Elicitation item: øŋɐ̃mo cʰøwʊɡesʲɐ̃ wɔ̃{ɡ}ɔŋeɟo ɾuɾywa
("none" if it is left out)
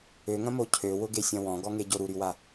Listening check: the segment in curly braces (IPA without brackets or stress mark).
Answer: ɡ